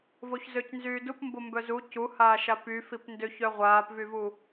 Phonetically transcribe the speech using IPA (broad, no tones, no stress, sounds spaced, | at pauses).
v o ç z ø c n z yː d u p m b o m b œ z u c u h aː ʃ a p y f i p n d ø ç œ ʁʷ aː p v y v u